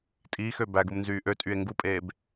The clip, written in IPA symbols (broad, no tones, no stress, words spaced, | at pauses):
tʼiːxø bæɡumnzyː ʔøtʼye̯ ŋɡupʼeːb